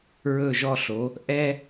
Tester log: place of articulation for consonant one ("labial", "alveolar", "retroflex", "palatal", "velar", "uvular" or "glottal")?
alveolar